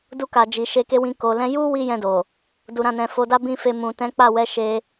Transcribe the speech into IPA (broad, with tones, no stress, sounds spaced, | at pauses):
d u˧ k a˨ d͡ʒ i˨ ʃ e˧ k e˦ w ĩ˧ k o˨ l ɛ̃˧ j u˦ w i˧ j ɛ̃˧ d o˨ | d u˨ ɾ ã˨ n ɛ̃˨ f o˨˦ d a˦ b ĩ˦˨ f e˧ m ũ˨ t ɛ̃˨˦ k͡p a˦˨ w ɛ˧ ʃ e˧